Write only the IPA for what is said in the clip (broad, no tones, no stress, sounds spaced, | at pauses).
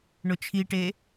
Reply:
ɳ ʊ t͡ʃʰ i ʈ e